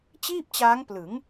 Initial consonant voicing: voiceless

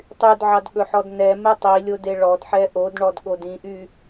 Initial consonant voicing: voiceless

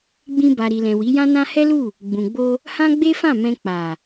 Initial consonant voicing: voiced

